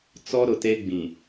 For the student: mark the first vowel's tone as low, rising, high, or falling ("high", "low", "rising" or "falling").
high